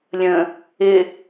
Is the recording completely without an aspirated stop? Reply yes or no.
yes